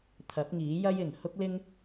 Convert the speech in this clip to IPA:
t̪ʰɐ˨˥p̚ŋiː˨˥jɐ˥j ɪ˨˩ŋ hʊ˥k̚lɪ˥ŋ

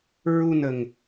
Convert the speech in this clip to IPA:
ɹu˧nə˨˩ŋ

